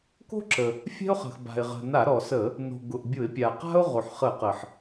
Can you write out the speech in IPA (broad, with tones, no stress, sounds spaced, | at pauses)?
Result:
k o̤˥ ǁ ə˩ | fʲ ɛ̤˥ ʊ̯ χ ə̤˩ x b a̤˩ ɪ̯ ʁ ə̤˩ n a˧˩˧ ɾ ɔ˩ s ə˧˩˧ | n o̤˩ ɡ ʊ˩ ʔ bʲ ʊ˧˩˧ ɪ̯ pʲ a˩ q a̤˥ ʊ̯ ʁ o˩ ħ χ ə˧˩˧ q ə˩ ħ